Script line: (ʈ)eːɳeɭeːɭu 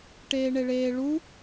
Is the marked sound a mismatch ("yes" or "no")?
no